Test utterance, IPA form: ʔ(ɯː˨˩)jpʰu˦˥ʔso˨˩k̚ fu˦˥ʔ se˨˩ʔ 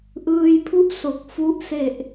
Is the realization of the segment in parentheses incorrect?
yes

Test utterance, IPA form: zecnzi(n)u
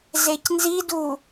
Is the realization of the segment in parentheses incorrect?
yes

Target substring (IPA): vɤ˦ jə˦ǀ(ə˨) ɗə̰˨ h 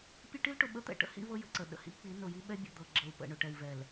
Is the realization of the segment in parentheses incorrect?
no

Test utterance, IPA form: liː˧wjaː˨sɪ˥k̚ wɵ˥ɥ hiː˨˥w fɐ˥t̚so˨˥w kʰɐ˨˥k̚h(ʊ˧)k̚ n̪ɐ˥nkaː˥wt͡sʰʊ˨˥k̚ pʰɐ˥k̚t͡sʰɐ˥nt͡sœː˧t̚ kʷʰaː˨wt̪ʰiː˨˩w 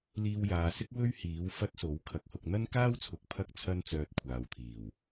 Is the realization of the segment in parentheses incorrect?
no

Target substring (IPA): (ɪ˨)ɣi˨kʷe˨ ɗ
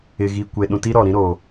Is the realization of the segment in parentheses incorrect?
no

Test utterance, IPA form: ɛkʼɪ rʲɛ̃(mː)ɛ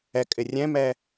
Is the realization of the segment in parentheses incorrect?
yes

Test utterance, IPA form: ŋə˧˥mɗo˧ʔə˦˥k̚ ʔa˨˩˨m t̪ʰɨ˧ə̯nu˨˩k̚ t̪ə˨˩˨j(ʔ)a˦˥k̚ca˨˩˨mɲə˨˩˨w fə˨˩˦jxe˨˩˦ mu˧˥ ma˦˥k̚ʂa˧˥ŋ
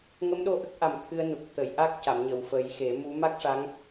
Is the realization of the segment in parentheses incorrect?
no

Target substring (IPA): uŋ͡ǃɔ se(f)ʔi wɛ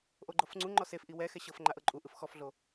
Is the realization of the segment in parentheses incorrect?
no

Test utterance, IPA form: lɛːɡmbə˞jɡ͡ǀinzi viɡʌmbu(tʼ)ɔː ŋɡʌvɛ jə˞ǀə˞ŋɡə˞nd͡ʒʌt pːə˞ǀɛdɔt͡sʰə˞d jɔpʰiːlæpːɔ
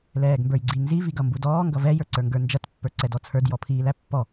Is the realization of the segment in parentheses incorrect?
yes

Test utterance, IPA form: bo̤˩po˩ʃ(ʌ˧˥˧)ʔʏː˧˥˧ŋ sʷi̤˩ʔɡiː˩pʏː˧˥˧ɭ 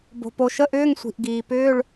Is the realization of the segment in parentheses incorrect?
yes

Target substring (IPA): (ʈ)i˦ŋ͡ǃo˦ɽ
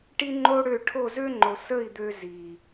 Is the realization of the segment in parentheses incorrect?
no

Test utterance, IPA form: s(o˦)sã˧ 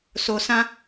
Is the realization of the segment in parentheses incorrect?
yes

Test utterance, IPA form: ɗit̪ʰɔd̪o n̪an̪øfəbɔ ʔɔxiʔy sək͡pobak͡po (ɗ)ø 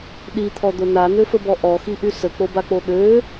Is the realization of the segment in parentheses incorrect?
no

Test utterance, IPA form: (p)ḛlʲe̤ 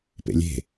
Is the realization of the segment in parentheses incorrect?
no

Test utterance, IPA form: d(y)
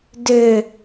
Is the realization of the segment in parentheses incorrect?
yes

